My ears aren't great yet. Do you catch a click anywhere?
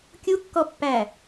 no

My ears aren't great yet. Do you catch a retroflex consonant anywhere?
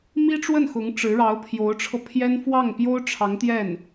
yes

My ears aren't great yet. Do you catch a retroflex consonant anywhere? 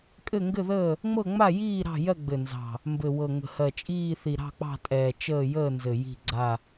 no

